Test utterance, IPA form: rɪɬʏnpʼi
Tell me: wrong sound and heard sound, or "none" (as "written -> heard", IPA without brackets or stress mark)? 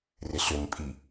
none